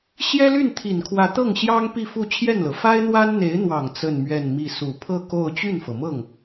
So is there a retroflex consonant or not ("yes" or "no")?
no